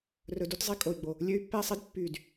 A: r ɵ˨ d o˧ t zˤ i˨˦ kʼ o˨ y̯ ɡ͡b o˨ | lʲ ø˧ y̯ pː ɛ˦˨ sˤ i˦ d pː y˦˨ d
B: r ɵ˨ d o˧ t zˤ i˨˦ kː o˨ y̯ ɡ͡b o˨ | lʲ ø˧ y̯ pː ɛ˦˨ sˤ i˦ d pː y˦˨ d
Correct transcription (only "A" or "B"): A